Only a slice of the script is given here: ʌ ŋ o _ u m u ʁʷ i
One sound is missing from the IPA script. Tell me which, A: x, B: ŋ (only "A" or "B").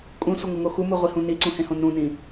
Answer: A